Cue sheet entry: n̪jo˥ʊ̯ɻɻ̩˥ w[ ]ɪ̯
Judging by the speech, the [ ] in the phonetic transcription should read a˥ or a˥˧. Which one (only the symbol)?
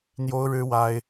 a˥